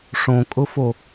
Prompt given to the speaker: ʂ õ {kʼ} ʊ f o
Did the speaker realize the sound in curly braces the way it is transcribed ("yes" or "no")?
yes